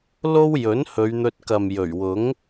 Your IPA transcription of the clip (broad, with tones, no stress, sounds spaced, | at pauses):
l o˥ w j ɵ˨˥ n h ɵ˨˧ ɥ n̪ ɵ˧ t̚ k ɐ˨ m j ɵ˨˩ ɥ w ʊ˨˥ ŋ